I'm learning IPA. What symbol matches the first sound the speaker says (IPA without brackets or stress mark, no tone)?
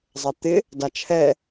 zˤ